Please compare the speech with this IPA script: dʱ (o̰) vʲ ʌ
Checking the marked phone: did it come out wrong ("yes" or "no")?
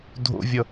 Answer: no